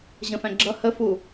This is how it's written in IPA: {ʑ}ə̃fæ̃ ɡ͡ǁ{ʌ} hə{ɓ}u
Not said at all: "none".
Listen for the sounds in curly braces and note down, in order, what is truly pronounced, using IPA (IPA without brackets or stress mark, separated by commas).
ʑ, ʌ, f